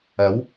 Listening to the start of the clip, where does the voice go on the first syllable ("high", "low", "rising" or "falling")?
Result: rising